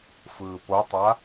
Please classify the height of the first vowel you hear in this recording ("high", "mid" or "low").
high